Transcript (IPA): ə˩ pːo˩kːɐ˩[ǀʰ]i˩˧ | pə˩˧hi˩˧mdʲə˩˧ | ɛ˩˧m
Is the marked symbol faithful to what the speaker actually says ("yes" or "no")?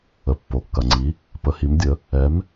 no